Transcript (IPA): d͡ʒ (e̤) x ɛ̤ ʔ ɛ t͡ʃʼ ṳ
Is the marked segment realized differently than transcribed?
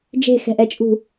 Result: no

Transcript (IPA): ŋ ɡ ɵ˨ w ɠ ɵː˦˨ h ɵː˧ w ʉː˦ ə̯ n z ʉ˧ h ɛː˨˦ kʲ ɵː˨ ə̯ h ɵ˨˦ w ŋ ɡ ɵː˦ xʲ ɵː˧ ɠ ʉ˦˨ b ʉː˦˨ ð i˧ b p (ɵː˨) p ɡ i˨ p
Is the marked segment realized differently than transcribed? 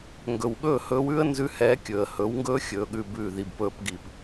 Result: yes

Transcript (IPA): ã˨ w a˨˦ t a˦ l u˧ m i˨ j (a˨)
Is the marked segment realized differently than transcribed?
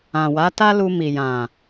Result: yes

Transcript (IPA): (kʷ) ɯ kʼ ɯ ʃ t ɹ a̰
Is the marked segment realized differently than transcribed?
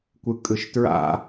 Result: no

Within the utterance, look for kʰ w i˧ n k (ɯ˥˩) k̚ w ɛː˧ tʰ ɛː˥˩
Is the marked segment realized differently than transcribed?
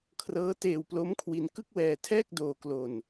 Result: no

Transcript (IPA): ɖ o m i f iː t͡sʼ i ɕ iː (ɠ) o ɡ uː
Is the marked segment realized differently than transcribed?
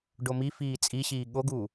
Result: no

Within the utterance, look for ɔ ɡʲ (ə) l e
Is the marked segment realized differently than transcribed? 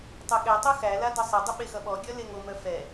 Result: yes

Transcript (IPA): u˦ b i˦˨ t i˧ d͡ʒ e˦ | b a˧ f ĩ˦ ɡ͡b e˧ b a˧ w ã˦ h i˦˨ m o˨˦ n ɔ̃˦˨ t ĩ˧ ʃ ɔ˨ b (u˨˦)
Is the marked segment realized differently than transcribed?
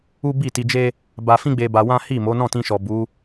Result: no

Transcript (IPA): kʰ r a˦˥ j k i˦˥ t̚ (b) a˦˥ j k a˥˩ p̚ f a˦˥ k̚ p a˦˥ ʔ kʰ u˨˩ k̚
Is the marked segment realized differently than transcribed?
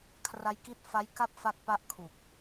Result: yes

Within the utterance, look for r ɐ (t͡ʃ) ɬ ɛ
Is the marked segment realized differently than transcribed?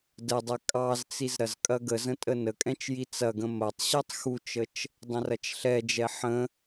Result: no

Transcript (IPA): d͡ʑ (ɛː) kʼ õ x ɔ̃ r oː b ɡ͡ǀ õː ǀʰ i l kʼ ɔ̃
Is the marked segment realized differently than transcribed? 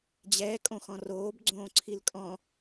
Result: no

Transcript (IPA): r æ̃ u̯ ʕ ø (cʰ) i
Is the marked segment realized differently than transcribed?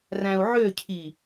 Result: no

